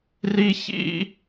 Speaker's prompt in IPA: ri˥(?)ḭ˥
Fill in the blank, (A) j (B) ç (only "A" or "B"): B